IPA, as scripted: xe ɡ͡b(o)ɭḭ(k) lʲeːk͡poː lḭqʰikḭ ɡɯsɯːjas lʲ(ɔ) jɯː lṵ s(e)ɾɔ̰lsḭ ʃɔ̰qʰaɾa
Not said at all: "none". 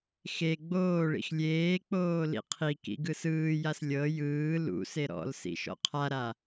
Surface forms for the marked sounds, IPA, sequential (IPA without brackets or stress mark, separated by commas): oː, x, ɤ, e